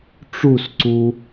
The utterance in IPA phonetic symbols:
ʈ͡ʂ u s ǀ u

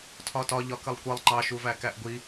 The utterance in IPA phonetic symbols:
tʰ ɒ t ɒ ʎ ɒ k ə lˠ kʷ ʌ lˠ ŋ͡ǃ ɑ ʃ u v æ k æ ʔ ɡʷ i

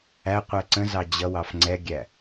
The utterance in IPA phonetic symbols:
æ qʷ æ ǀ ə̃ z ɑ d͡ʑ ʌ w ɑ f ŋ͡ǀ ɛ ɡʲ æ

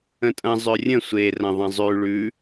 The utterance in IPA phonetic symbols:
ə̃ tʼ ɐ̃ zˤ ʏ rʲ ə̃ sʷ e r ɐ̃ ðˤ ɐ̃ zˤ ʉ ɭ ʉ

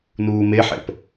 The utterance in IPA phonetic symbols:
n uː m e ħ ɛ̰ p

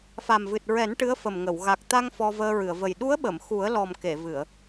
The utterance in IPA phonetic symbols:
f a˨˩ m v ɨ˨˩ t̚ ɹ ɛ˨˩˦ n ʈ ɨ˧˥ ə̯ f ə˨˩ m ŋ ə˨˩˨ w ɣ a˨˩ k̚ t̪ a˧ ŋ f ɔ˧ v əː˧ ɹ ɨ˨˩˨ ə̯ v ə˨˩ j ɗ u˧˥ ə̯ ɓ ə˨˩˨ m x u˨˩˦ ə̯ l ɔ˨˩ m k e˨˩˨ v ɨ˨˩˨ ə̯

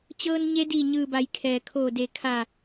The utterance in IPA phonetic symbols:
t͡ɕ ɤː˧ n ɲ e˧˥ d iː˧˩ ɲ ɯː˧˩ b a˩˧ j kʰ ɛː˩ kʰ oː˧˩ d e˧˩ kʰ a˧˩

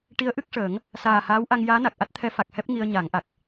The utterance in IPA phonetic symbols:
ʈ i˧˥ ə̯ ʔ ɨ˦˥ k̚ ʂ əː˨˩˦ ŋ | s aː˨˩ h aː˧˥ w ʔ a˧ ŋ j aː˧˥ n a˨˩ k̚ ʔ a˦˥ t̚ t̪ʰ ɛ˧˥ f a˨˩ k̚ h ɛ˦˥ p̚ ŋ i˧ ə̯ ɲ a˨˩˦ ŋ ʔ a˨˩ k̚

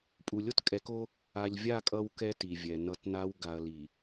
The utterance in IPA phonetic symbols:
pʼ u˨ lʲ o˦ t kʼ ɛ˨˦ k o˦ | a˨ ʎ vʲ a˦˨ kʼ ʌ˦ w k ɛ˦ t i˨ vʲ ɛ˨ n ʌ˦˨ t n a˦ w ɡ a˨ ɐ̯ l i˨

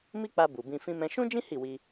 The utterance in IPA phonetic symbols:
m i˦ k͡p a˧ b u˨ b ĩ˧ f ĩ˧ m ɛ̃˧ ʃ ũ˦ d͡ʒ ĩ˦ h i˦˨ w i˧

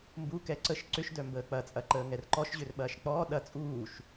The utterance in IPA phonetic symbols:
m b u k ɛ ǀ ə ʃ ǀ ʏ ʃ d œ m b əː k͡p ɐ t͡sʼ ɐ ǃ əː ŋ ɛ r ǃ ɔ ʃ ʑ ø r ɓ ɐː ʃ k͡p ɔː ɗ ɐ t͡sʼ uː ʃ

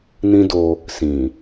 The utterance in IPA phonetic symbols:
n ĩ˦ d o˧ | s ĩ˨

